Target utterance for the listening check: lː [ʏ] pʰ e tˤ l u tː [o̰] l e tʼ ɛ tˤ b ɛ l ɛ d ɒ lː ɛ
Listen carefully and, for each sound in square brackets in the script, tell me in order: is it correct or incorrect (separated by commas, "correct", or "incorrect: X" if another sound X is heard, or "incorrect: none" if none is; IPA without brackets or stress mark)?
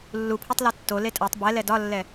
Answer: incorrect: u, incorrect: o